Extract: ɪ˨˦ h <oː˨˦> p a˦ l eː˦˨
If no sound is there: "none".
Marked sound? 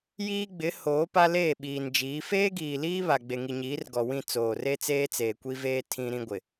oː˨˦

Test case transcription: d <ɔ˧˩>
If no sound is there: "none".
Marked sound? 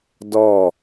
ɔ˧˩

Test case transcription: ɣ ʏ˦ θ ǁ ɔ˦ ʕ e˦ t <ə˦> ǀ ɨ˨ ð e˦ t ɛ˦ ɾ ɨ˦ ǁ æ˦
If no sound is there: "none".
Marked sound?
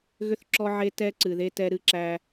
ɛ˦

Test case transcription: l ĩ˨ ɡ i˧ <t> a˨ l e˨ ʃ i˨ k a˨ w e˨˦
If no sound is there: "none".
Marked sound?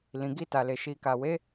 t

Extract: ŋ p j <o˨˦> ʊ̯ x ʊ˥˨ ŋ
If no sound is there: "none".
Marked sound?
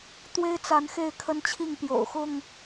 o̰˨˩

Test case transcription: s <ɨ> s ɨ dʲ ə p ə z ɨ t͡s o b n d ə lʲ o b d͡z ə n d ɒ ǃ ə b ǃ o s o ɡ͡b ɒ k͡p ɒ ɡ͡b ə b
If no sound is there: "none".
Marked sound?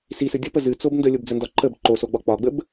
i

